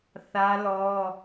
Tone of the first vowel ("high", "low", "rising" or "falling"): high